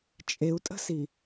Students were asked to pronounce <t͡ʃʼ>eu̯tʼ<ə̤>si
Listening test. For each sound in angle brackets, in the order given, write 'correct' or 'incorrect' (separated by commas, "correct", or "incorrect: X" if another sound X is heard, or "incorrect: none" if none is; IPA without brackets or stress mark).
correct, correct